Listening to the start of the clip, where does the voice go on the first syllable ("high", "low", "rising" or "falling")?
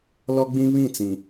high